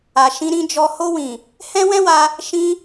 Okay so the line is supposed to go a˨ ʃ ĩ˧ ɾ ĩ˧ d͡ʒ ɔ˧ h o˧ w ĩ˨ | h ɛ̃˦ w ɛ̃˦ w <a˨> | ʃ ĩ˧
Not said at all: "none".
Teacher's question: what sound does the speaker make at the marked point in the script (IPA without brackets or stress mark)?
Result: a˧